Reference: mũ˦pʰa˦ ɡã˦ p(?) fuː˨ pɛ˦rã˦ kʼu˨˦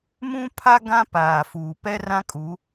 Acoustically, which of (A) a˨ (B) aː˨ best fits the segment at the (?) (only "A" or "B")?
B